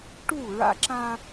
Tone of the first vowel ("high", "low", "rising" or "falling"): falling